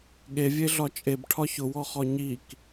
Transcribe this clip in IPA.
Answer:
ɠ e vʲ e ɮ ɒ t͡ʃʼ e b ʈʰ ɒ ç ʊ w ɔ χ ɔ ɲ i k

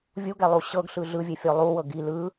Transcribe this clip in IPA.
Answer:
vʲ u ɡ ɛ lˠ u ɕ ɤ ɡ ɬ ɯ ɮ ɯ vʲ e fʲ o lˠ u w ɤ ɡ i l ɯ

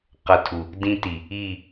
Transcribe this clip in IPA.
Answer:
q ʌ˨ tʰ u˨ | d ĩ˧ t i˨ | i˦˨

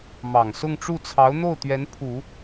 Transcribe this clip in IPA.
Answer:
m ɑ˨˩ ŋ s ʊ˥˧ ŋ ʈ͡ʂ u˥˩ t͡sʰ ɑ˧˥ ʊ̯ n̪ o˥˩ ʊ̯ t̪ ɥ ɛ˧˥ n pʰ u˨˩˦

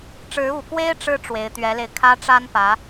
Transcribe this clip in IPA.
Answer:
ʈ͡ʂ ɻ̩˧˥ u˨˩ k w e˥ ɪ̯ ʈ͡ʂ ɻ̩˥ ʈ͡ʂ w e˧˥ ɪ̯ t̪ ɥ ɛ˧˥ l e˧ ɪ̯ kʰ ä˥ ʈ͡ʂ a˥ n p ä˧˥

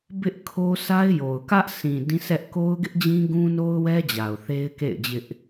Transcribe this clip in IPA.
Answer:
b ɪ˦ ʔ kʰ o˦ s a˦ ɪ̯ j o˨ ʊ̯ k ä˦ ʔ s ĩ˨ d ĩ˦ s ɛ˦ ʔ k o˦ ʊ̯ ɡ ɪ˦ ʔ d͡ʑ ĩ˦ ɡ ũ˦ n o˦ ʊ̯ w ɛ˦ d͡ʑ a˨ ʊ̯ θ e˦ ɪ̯ k ḛ˦˨ ɪ̯ d͡ʑ ɪ˦ ʔ

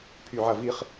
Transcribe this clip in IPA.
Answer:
pʰ y ʕ ɐ v i χ

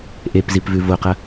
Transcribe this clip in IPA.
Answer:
ʔ e p z i p v ʉ v o q ɐ

